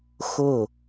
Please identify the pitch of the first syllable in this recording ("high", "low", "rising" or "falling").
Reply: falling